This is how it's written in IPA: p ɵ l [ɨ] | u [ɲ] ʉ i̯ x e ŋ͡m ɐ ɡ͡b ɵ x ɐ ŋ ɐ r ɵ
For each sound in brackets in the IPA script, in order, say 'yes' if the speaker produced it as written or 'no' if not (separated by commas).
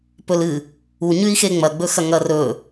yes, yes